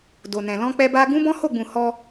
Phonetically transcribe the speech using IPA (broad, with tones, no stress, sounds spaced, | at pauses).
d o˨ n ɛ̃˨ l ɔ̃˧ k͡p ɛ˧ b a˧ ɡ ũ˦ b ɔ̃˦ h o˦˨ ɡ͡b ũ˨ h ɔ˧